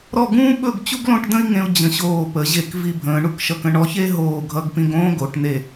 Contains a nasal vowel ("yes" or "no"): yes